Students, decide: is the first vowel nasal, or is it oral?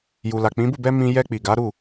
oral